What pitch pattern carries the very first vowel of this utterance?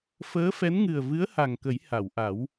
rising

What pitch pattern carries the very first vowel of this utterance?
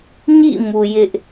falling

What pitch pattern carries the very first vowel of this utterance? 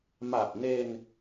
low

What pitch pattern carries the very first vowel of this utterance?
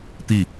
falling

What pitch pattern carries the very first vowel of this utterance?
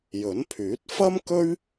rising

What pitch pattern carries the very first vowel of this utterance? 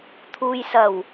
low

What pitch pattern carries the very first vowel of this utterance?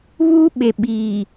high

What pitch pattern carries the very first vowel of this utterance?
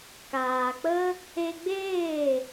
low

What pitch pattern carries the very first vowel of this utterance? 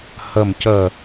falling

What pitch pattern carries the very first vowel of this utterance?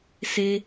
high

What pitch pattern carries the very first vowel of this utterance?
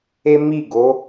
high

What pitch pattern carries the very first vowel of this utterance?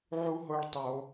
high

